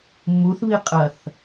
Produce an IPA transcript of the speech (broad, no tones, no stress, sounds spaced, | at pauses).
mː u θ β i qʼ ɐ θ